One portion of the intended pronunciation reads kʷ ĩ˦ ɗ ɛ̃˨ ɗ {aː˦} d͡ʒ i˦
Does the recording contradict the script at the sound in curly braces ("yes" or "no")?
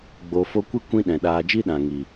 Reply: yes